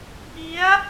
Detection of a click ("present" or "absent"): absent